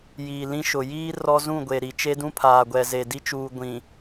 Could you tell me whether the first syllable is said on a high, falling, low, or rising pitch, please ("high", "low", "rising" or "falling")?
low